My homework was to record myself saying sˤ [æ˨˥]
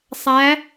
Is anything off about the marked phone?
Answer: no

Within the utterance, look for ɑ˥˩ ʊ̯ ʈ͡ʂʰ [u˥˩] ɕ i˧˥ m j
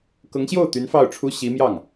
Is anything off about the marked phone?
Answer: yes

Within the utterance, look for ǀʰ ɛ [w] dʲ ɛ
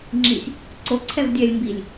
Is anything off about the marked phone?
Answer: yes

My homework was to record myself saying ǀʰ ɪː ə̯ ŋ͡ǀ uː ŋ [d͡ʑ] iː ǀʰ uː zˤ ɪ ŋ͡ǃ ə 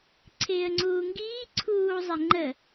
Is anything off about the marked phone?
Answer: yes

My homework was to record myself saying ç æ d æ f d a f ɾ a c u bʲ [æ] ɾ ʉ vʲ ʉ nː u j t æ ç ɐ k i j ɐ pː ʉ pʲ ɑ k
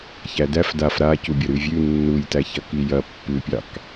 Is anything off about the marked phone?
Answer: yes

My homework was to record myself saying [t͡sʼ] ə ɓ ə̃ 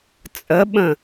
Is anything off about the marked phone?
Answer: no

